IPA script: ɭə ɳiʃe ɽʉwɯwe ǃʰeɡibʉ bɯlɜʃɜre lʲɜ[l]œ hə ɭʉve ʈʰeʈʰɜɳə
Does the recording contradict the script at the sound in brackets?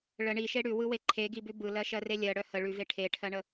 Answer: yes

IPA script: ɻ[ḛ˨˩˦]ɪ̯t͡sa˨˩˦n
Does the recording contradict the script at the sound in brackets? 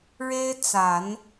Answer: yes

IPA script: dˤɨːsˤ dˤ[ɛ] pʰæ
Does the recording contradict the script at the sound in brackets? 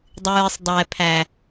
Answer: no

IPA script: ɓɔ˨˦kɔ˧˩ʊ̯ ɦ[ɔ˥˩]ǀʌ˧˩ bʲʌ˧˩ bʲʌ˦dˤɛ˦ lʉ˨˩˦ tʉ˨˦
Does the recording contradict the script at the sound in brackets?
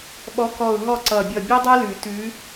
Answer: no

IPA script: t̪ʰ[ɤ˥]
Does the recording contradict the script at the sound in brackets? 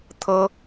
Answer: no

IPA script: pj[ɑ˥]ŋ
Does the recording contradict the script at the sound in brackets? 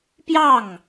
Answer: yes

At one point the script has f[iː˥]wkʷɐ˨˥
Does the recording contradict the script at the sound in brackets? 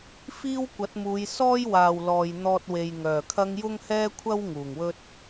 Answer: no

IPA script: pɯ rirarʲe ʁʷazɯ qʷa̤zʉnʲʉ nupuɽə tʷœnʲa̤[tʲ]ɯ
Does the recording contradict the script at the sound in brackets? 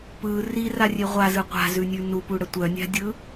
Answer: yes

